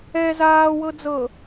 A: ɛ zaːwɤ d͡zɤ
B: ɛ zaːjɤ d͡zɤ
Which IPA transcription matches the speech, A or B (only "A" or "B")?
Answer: A